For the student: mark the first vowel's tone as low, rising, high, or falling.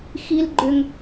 high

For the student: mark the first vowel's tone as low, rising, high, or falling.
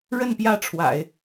falling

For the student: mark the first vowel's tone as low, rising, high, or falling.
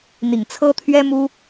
low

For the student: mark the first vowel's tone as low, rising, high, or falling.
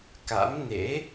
rising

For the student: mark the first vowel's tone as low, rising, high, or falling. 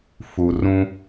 low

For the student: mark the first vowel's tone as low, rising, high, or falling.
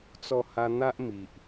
low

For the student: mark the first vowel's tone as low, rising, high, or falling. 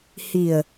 low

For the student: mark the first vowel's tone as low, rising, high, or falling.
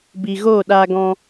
low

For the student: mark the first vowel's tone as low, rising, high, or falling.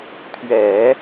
low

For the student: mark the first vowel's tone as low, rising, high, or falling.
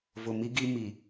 low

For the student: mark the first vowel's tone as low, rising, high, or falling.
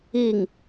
falling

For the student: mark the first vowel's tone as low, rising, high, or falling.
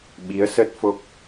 rising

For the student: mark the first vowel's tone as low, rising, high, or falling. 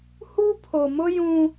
high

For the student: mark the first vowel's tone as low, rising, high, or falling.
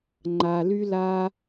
low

